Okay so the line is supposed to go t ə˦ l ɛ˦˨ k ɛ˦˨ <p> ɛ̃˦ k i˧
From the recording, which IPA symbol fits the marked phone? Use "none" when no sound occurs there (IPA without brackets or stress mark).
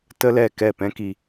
p